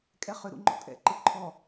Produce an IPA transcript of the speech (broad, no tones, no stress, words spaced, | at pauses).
kʼɛχʏ ɾṵŋ͡ǃɔ̰tʼɛ̰ ǃɯǃʰɔ